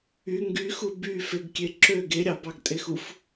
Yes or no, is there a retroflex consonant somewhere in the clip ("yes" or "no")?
no